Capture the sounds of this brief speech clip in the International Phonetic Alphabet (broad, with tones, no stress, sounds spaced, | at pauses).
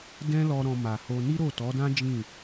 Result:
d ɛ̃˦ l ɔ˧ ɾ ɔ̃˧ m a˨ h o˧ n i˦ ɾ o˦˨ t ɔ˨˦ d ã˦ d͡ʒ ĩ˦˨